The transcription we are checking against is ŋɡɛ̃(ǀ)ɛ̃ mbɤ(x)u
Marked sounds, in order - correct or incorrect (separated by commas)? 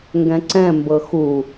correct, correct